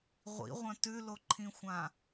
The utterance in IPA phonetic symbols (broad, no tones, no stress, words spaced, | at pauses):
ʁʷḭʁʷɐ̃ tʉloǃʰĩxʷã